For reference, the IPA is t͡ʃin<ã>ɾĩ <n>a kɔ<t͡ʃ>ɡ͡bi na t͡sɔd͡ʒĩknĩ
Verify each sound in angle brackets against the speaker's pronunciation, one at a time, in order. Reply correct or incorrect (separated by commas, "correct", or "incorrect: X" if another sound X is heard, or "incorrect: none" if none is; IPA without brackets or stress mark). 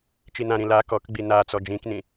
correct, incorrect: l, incorrect: k